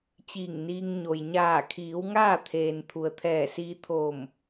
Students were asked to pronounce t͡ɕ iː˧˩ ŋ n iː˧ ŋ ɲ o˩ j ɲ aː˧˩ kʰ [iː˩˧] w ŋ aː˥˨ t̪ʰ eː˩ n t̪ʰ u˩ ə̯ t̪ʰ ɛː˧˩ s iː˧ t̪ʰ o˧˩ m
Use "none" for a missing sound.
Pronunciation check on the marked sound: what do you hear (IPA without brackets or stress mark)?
iː˩˧